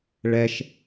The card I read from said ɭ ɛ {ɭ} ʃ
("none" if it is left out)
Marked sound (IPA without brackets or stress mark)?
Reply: none